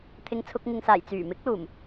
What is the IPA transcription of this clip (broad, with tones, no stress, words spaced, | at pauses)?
t̪ʰɪ˧ŋt͡sʰʊ˧k̚ ŋɪ˨ŋsaː˨˩j t͡syː˨˩mɪ˨˥k̚luː˨˩m